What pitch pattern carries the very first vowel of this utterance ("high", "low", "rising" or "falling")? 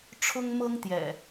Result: high